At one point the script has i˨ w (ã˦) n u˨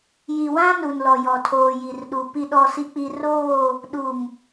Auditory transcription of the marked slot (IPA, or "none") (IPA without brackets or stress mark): ã˦